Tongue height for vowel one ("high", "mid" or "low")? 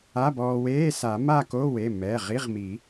low